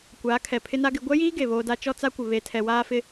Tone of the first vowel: rising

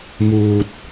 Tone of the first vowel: low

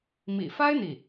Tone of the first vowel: low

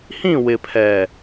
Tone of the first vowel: falling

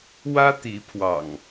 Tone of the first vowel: high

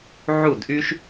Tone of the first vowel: falling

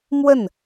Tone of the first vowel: falling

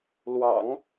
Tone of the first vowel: low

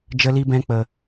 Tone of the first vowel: high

